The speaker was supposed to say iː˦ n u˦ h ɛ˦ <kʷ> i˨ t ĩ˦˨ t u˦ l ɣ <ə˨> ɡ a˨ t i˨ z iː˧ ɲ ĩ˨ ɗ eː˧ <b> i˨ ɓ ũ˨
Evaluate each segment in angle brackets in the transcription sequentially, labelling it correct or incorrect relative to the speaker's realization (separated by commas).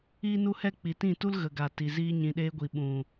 incorrect, correct, incorrect